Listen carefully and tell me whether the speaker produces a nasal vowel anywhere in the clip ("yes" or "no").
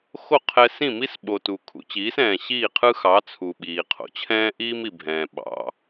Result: yes